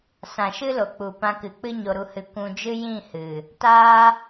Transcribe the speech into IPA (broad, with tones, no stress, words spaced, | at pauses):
sã˨ʃɨ˦lo˨k͡pu˨ pã˧kɨ˨k͡pɨ˦ ɲo˧ɾu˧hɨ˧ kʷũ˧d͡ʒɨ˦ jĩ˦˨hɨ˨ | taː˦